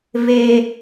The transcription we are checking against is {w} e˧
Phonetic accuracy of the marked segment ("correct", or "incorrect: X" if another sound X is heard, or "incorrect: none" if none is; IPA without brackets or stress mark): incorrect: v